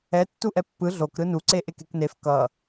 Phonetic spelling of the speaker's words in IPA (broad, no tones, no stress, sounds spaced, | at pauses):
ɛ tː u ʔ ɛ pː ɯ ɮ o k ɾ ɯ n u ǀ e ʔ e k e k n e f k ʌ